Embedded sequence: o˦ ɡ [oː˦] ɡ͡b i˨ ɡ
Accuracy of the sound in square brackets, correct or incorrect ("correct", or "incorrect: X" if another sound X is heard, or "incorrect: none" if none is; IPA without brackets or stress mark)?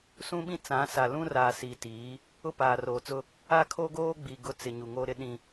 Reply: correct